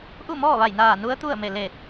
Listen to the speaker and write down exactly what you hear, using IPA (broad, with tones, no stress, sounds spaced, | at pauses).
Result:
ʔ u˥˨ m ɔː˥˨ ʋ a˧˩ j n aː˧˩ n u˧˥ ə̯ t̪ u˥˨ ə̯ m e˧˩ l e˧˩ t̚